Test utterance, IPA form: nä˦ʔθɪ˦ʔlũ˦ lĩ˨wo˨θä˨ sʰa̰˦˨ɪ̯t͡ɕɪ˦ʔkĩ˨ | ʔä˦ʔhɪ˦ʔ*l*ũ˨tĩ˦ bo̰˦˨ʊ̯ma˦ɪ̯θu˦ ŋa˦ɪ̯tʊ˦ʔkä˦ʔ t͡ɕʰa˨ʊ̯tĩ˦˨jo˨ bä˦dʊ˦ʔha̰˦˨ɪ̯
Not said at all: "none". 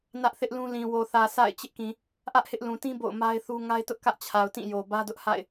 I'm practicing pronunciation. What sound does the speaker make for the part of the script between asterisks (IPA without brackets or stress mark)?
l